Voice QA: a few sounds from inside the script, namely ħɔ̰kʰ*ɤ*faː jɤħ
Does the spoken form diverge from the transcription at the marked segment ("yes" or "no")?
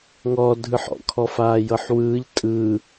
yes